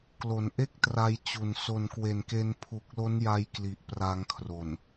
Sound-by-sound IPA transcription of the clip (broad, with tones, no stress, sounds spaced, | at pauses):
k l o˩˦ n ʔ e˥˩ k̚ t r a˧ j t͡ɕ u˨˩ n s o˨˩ n k w e˨˩ n k e˧ n pʰ u˨˩ k̚ l o˦˥ n j a˧ j k l i˨˩ ʔ p r a˧ ŋ kʰ r o˨˩ n